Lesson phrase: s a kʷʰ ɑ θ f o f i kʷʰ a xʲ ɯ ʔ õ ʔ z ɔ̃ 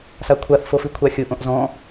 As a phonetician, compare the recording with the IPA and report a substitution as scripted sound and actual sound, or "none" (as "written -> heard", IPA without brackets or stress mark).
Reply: ɑ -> a